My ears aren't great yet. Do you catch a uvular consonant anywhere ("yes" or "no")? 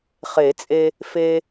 yes